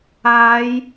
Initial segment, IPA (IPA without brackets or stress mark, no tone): aː